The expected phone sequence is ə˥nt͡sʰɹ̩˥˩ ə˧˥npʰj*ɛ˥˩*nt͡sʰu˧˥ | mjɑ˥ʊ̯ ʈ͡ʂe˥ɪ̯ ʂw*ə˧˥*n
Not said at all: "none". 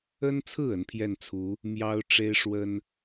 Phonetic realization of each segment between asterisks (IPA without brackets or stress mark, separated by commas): ɛ˥˩, ə˥